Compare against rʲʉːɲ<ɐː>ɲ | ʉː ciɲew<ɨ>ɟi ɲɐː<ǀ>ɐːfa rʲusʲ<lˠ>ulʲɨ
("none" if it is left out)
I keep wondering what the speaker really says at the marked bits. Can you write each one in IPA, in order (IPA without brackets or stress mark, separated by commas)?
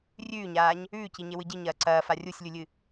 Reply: aː, ɨ, ǀ, lʲ